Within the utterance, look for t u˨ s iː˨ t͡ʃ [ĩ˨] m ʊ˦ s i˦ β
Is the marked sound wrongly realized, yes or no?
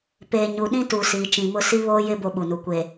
no